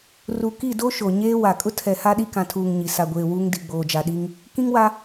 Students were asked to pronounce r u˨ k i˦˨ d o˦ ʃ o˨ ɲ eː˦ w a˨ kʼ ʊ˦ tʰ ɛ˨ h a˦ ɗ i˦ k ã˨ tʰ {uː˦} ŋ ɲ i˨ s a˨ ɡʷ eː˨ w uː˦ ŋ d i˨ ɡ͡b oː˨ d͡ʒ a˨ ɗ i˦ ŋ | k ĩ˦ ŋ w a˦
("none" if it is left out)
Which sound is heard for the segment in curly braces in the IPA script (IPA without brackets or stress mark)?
uː˨